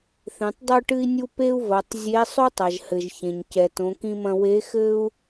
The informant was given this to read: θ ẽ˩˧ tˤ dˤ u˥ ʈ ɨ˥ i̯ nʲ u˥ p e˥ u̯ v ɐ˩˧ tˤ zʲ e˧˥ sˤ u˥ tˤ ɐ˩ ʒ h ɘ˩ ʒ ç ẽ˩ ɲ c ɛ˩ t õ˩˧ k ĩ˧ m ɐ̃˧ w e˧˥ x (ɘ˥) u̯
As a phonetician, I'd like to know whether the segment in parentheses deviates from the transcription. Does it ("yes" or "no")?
no